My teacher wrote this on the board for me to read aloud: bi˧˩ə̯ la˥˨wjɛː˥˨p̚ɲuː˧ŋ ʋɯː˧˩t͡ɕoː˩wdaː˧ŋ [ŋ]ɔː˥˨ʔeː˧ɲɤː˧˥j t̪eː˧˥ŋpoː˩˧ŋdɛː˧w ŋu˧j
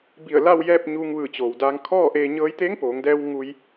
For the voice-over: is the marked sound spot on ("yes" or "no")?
no